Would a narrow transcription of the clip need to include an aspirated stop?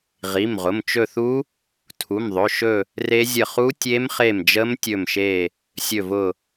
yes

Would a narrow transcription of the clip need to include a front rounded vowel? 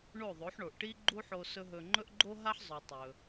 no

